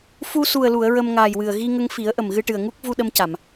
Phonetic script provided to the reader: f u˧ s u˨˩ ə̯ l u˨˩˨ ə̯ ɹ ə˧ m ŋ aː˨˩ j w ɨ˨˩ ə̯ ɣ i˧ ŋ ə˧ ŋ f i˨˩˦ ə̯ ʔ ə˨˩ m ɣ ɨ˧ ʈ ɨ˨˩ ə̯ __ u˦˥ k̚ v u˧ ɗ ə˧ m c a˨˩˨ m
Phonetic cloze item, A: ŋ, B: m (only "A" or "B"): A